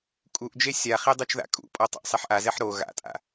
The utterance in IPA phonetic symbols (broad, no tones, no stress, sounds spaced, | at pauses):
kʼ u ʔ d͡ʒ e sʲ a χ e dˤ u t͡ʃ ð a̰ kʼ ṵ pʼ ɔ tˤ a̰ ʔ sˤ e ħ ʔ a z ɛ ħ ɾ o ɣ a̰ tʼ a̰